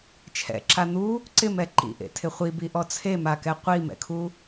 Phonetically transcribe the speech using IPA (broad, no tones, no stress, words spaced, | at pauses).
t͡ʃʰɛ̰ǁa n̪u | ǀɪmɛ ǃḭʔḛtʰɪ χʷibiʔɔ t͡sʰemakɛ qʷimɛ̰kʰu